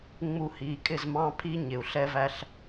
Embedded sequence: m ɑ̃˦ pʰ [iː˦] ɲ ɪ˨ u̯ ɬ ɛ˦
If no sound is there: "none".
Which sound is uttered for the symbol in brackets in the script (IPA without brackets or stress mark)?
i˦